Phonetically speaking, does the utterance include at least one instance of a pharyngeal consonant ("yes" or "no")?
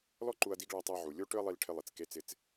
yes